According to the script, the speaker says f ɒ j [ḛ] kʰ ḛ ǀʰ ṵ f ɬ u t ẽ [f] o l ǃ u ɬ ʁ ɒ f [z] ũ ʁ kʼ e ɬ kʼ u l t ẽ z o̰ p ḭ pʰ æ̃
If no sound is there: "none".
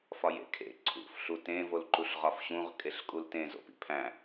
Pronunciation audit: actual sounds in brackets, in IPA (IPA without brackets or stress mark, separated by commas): ḛ, v, ɕ